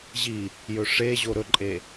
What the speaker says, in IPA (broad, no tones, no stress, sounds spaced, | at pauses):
ʑ i | j ɵ ʂ e ʑ o ɾ ɵ ǃʼ e